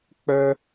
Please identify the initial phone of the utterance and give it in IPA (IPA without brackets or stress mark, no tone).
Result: k͡p